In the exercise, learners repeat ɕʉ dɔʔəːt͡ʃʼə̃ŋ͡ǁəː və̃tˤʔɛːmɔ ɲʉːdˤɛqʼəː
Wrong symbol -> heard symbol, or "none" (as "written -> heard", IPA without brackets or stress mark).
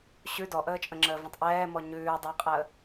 none